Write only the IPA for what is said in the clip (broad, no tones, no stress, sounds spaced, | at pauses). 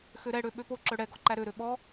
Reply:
x ø ɾ ɛ ɽ ø ɓ ø p o ǁ œ ɽ ɛ ɡ ɔ ǃ æ ɾ ø ɾ ø ɓ ɔ